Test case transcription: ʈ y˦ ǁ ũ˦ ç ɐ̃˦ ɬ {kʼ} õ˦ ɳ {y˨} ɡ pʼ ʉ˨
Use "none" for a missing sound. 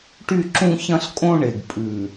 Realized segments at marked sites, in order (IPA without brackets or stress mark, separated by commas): kʼ, e˨